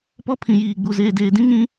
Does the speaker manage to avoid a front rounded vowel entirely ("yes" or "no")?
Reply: yes